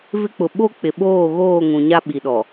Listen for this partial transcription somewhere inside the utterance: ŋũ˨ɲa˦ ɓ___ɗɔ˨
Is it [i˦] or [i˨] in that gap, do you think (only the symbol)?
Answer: i˨